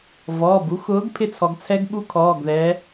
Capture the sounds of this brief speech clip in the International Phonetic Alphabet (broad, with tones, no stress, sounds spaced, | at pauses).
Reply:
v ɔː˩˧˩ b u˨˥ x ʊː˨˥ ɡ pʰ ɪ˦˥ t͡sʰ ɔ˩˧ ɡ t͡sʰ ɛ˦˥ ɡ ɓ u˦˥ kʰ ɔː˩˧˩ ɡ ð ɛ˩˧